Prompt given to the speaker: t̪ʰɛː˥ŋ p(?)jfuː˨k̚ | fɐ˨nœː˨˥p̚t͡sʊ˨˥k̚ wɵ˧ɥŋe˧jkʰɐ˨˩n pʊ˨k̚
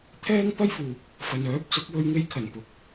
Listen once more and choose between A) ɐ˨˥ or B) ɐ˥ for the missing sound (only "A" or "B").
B